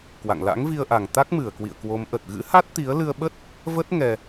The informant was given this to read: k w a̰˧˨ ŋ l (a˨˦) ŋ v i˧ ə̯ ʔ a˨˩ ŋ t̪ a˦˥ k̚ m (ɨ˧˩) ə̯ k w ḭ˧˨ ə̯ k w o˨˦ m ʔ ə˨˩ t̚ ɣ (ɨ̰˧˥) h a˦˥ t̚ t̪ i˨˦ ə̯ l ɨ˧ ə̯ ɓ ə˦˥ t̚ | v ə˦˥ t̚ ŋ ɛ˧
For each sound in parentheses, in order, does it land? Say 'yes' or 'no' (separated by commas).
no, yes, yes